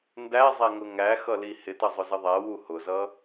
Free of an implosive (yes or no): yes